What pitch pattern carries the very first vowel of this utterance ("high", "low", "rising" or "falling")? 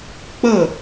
falling